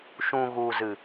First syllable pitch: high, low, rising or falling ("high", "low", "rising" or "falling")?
low